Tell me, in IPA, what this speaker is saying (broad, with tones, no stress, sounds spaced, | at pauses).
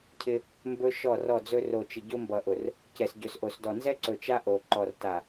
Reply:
cʰ ɪ˦ | m b ɵ˦ ʃ ɔ˦˨ r ɔ˦˨ d͡z ɵ˦ r o˨ t͡ʃ ɪ˨ ɟ o˦ m b ʌ˨ ʔ ʊ˨ r | c ɛ˨ s ɟ ɵ˨ s ʔ o˨ s d ɔ˨ n z ɛ˦ ǀ ɵ˨ t͡ʃ a˦ ʔ o˨ ǃ ɔ˨ r t a˨